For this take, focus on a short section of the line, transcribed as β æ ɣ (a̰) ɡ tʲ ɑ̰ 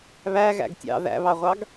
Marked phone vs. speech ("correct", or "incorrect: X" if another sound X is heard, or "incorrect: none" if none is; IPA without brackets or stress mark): incorrect: æ̰